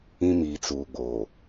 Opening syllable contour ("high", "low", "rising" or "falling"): high